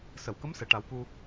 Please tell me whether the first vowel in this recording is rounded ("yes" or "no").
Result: no